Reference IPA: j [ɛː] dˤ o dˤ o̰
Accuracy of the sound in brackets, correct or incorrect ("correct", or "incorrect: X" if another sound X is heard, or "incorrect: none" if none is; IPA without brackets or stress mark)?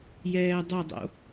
correct